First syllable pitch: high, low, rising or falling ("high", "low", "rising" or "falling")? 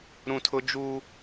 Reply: high